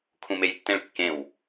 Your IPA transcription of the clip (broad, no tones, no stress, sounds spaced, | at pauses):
kʰ ũ m e j tː ẽ ɭ kː ẽ w